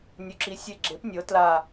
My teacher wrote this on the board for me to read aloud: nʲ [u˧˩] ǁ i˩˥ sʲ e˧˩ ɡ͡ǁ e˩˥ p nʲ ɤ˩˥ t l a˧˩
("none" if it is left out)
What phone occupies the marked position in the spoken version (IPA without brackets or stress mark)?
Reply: u˩